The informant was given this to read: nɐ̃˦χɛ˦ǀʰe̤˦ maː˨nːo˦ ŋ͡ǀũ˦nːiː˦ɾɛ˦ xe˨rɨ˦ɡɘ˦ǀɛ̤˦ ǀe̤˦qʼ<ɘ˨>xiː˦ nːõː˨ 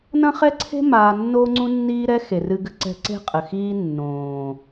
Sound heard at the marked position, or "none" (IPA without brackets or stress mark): ɘ˨